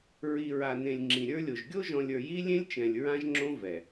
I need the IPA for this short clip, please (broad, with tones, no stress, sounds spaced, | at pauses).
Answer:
ɹ i˨ ɹ a˨ n ẽ˨ lʲ ŋ͡ǁ ĩ˨ ɾʲ ə˞˦ lʲ o˨ ʒ ɡʲ o˦ ʒ ɔ̃˨ lʲ ə˞˨ j i˦ lʲ ẽ˦ lʲ t͡ʃ ɛ̃˨ lʲ ɹ ã˦ ʒ ŋ͡ǁ õ˦ v ɛ˨